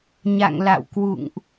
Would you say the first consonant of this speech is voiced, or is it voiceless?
voiced